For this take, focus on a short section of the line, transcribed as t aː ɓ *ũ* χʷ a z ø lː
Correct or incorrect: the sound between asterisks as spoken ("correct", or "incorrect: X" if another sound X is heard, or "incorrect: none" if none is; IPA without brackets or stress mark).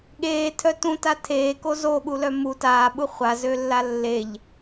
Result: incorrect: u